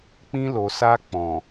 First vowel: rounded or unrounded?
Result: unrounded